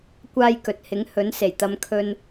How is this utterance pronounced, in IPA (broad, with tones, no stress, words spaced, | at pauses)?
kʷaː˥jkɵ˨˥t̚ hɪ˨˥ŋhɵ˨˥nse˨˩jt̪ɐ˧m kʰɵ˧n